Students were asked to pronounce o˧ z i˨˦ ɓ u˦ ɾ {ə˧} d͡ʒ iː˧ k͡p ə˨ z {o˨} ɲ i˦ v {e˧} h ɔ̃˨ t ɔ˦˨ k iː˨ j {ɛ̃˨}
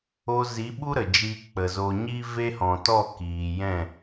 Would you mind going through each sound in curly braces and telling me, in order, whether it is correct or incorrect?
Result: incorrect: ə˨, correct, incorrect: e˦, incorrect: ɛ̃˦˨

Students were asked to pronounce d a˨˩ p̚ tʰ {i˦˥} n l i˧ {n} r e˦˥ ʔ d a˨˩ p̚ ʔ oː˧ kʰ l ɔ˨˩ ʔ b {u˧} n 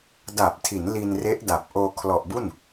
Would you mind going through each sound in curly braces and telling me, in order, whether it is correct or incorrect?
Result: incorrect: i˩˦, correct, incorrect: u˥˩

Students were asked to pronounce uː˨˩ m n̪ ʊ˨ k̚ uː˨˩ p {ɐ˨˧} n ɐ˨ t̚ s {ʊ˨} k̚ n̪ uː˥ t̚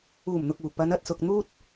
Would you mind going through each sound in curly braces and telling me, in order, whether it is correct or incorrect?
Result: correct, correct

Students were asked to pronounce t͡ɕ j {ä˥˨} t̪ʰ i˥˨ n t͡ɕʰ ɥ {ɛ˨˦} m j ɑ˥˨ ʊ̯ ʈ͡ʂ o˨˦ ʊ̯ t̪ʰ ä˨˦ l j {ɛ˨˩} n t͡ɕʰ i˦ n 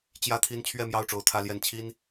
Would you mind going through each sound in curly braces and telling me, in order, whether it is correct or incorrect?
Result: correct, incorrect: ɛ˥˨, incorrect: ɛ˨˦

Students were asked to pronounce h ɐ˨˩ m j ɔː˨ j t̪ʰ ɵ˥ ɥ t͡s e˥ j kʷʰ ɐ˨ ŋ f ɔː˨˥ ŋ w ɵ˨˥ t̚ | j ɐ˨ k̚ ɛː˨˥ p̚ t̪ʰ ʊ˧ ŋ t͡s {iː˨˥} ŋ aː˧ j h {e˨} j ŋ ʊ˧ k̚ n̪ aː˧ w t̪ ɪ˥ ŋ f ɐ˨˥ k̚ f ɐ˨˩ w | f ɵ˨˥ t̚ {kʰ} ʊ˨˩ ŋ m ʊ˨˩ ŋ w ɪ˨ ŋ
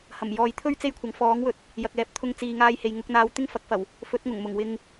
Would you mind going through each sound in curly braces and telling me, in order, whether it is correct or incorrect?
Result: incorrect: iː˨, correct, incorrect: ŋ

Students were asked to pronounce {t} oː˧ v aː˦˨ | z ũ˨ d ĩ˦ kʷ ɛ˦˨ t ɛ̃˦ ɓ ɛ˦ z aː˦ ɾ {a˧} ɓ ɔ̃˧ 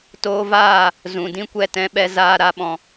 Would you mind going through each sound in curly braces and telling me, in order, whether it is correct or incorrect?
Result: correct, incorrect: a˦

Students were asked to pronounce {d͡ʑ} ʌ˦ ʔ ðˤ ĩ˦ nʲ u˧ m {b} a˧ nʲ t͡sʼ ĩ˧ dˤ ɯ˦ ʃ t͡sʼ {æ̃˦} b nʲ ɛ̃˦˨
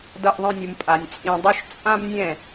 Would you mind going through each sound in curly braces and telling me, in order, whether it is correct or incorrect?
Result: incorrect: d, incorrect: pʼ, incorrect: ã˦

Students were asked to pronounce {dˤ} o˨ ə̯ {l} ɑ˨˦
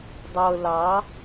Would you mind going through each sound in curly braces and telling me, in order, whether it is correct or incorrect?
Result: correct, correct

